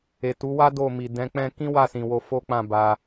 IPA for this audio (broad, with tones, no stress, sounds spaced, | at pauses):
e˨ t u˨˦ w a˦ d o˦˨ m i˨ d ɛ̃˨˦ k͡p ɛ̃˦ k ĩ˦ w a˦˨ s ĩ˨ w o˧ f o˦ k͡p ã˦˨ b a˧